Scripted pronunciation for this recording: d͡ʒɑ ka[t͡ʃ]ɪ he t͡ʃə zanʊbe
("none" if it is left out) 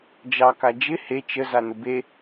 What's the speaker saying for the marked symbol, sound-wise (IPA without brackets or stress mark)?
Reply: d͡ʒ